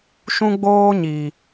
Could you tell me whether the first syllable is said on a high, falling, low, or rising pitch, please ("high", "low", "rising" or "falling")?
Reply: high